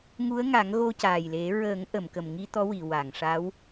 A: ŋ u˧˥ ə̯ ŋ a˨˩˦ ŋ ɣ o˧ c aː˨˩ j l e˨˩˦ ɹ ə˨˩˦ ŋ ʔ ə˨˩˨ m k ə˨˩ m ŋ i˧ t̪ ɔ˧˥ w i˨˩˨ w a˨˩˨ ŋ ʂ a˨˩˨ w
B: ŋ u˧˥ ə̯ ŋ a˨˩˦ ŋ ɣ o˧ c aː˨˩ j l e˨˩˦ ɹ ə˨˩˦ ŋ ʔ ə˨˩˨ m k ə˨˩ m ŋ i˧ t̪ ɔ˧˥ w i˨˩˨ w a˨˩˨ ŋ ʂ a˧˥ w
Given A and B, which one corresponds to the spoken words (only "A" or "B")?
B